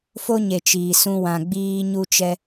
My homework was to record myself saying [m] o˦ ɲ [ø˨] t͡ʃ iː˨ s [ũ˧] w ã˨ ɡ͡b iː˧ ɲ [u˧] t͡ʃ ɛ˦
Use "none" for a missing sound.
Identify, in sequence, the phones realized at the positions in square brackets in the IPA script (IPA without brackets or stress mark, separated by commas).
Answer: f, e˨, ũ˧, u˧